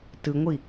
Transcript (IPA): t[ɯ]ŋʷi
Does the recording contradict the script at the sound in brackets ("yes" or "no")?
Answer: no